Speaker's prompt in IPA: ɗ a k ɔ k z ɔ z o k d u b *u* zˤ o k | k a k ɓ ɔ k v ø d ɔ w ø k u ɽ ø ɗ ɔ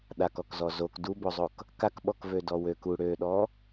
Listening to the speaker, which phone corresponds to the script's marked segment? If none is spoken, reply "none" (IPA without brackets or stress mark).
o